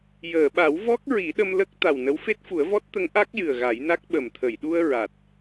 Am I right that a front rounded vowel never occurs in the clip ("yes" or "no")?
yes